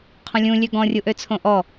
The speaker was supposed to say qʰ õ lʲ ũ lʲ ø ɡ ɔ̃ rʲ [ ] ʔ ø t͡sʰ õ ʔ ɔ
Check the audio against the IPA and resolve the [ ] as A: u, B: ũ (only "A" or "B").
A